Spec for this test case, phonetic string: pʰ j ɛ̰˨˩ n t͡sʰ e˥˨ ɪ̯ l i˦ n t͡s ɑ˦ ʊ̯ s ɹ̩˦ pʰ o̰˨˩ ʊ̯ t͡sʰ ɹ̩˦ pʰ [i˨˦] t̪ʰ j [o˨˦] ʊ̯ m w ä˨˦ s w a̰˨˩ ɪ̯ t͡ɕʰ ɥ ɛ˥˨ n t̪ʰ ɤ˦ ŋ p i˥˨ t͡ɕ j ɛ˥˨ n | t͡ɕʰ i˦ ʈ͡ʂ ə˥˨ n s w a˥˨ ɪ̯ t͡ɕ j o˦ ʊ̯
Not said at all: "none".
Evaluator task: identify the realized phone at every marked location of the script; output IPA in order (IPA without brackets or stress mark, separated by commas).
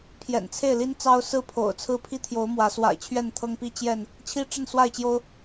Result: i˦, o˨˦